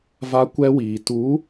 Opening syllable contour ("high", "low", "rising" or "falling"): high